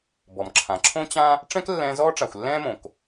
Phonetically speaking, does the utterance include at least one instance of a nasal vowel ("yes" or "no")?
yes